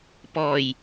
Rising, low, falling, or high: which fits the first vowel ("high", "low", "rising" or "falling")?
low